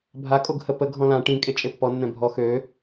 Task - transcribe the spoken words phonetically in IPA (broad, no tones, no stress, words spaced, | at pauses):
bʱa kʼoɡhə pə ɡʱɔ̃lã ʈĩ kʼet͡ʃʼepːɔ nːɛ̃bʱɔ xø